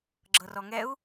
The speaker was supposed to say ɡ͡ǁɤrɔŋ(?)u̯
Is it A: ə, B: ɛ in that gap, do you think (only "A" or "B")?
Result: B